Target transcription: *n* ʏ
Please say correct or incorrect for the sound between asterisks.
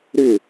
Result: incorrect: ɾ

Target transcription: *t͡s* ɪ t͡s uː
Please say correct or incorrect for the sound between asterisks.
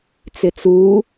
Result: correct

